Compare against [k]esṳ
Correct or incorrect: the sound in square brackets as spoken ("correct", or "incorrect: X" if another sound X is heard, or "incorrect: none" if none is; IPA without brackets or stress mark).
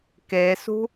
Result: correct